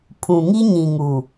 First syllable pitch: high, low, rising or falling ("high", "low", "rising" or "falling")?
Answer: low